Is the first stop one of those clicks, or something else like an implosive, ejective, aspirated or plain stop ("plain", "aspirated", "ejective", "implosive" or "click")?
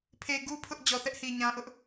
aspirated